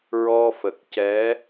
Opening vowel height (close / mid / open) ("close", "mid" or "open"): mid